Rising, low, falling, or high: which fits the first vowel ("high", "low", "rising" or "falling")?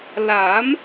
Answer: rising